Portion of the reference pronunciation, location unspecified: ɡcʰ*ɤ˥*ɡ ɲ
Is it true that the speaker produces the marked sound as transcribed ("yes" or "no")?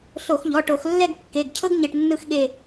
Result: yes